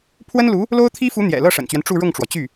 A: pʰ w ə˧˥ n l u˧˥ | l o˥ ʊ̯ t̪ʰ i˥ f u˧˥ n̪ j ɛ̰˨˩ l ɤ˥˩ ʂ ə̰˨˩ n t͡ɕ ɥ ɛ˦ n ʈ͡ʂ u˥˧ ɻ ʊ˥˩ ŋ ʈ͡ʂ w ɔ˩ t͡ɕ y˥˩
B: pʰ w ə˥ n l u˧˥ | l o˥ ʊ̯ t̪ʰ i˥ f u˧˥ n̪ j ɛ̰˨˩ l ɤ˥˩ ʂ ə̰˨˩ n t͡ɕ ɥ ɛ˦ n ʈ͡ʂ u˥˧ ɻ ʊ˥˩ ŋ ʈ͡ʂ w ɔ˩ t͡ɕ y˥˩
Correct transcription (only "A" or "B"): B